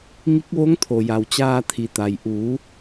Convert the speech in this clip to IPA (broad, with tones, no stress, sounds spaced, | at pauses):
ŋ i˧˥ k̚ ʋ o˧˥ ŋ t̪ʰ o˩ j a˩ w t͡ɕ aː˧ t̪ʰ i˩ t̪ a˩ j ʔ uː˩˧